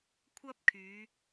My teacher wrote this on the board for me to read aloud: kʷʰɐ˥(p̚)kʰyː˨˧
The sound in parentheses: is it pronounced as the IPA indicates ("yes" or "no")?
yes